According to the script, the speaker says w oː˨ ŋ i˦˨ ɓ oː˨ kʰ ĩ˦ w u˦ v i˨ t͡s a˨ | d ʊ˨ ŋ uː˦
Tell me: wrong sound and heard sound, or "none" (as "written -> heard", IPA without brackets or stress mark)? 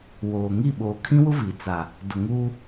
u˦ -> ʊ˦